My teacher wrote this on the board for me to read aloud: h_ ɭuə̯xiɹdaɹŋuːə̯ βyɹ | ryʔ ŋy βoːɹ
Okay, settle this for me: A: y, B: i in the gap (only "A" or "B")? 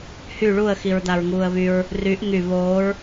A